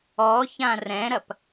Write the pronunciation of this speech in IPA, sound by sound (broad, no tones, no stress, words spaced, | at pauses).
ɔçã rɛ̃ɾɐp